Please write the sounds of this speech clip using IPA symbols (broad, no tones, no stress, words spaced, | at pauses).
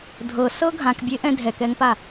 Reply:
dʱɤsɤ ɡʱãkbʲeʔɛ̃ dʱɛkɛŋpa